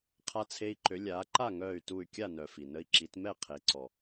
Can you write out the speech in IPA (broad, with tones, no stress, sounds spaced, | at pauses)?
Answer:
qʰ a˧ t͡sʰ e˧ i̯ ǃ ø˩˥ lʲ aː˩˥ ǃ a˥˩ ŋ œː˥˩ y̯ t u˥˩ y̯ kʲ a˥˩ n œ˩ f i˩ n ə˧ i̯ ǁ i˩˥ t m ɛ˥˩ qʰ e˩˥ ǀ ɔ˩